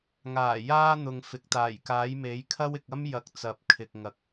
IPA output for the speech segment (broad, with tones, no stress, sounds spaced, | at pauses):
ŋ aː˨˩ j aː˧ n̪ ʊ˨ ŋ f ɪ˨˥ k̚ t̪ aː˨˩ j k aː˨˥ j m e˨˥ j kʰ ɐ˥ w ɪ˨ k̚ ɐ˥ m j ɐ˨˥ k̚ t͡s ɐ˨˥ p̚ kʰ ɪ˨ k̚ ŋ ɐ˨ k̚